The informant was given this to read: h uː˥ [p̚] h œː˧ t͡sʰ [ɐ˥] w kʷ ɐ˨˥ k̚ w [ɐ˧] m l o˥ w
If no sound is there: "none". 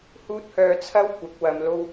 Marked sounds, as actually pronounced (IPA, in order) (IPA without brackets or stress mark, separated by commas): t̚, ɐ˥, ɐ˧